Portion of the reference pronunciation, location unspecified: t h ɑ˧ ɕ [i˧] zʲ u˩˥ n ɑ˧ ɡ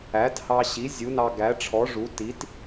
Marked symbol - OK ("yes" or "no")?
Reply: no